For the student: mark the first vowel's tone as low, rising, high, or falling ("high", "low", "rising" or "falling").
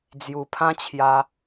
low